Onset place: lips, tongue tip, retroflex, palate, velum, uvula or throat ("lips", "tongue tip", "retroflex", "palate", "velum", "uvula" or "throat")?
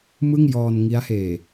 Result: lips